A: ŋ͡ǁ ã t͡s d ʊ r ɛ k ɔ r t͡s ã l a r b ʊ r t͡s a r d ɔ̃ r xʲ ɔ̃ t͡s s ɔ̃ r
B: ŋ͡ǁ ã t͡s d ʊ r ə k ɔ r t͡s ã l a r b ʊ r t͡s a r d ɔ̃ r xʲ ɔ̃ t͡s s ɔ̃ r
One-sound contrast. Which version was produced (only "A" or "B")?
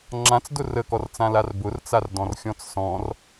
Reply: B